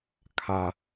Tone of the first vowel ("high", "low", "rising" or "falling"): high